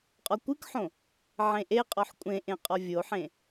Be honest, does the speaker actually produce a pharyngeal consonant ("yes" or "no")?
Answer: yes